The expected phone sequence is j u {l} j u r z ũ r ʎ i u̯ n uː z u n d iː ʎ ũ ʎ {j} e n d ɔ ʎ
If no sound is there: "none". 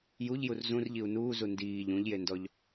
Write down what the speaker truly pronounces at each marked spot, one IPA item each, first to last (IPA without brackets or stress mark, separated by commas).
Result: ʎ, j